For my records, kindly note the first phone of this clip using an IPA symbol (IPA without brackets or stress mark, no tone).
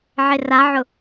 ʕ